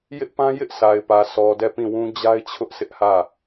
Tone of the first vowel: high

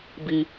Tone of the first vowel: high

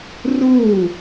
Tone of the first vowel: falling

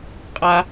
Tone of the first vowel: high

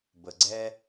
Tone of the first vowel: low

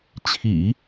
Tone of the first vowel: low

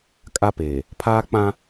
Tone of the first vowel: high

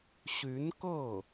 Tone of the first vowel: rising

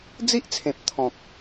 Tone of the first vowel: high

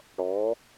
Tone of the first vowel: rising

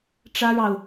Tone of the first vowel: high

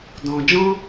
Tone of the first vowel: low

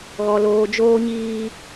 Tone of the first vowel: low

